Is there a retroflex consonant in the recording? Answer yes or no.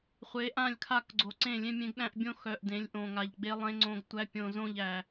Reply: no